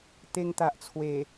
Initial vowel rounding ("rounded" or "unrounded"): unrounded